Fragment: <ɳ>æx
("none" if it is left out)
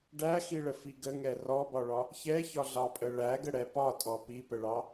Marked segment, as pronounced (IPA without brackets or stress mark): ɖ